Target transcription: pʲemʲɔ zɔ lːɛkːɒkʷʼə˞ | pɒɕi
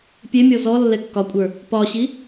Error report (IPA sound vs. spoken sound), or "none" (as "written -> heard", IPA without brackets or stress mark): none